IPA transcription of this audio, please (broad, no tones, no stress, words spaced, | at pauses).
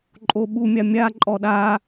ǃʼoɓumʲa mʲa ǃʼɔɗa